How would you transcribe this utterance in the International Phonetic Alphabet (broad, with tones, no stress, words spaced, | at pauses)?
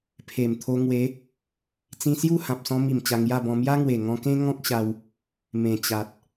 pʰe˨˩mt̪ʰo˧ ŋwe˨˦ | t͡sĩ˧sju˥˧ hã˨p̚sɔ̃˧mi˨˩m t͡ɕa˧ŋja˥˧bɔ̃˧ mja˦ŋwe˨˩ŋɔ̃˧kẽ˦ ŋɔ̃˦k̚ ɕa˧w | mẽ˨˩t͡ɕa˨t̚